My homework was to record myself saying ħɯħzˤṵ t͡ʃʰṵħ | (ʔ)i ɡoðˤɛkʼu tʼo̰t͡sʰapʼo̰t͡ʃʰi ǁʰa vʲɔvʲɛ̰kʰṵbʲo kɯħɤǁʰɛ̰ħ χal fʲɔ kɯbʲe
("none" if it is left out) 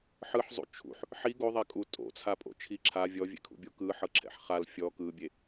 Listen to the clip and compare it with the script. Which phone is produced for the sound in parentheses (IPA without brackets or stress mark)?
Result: ħ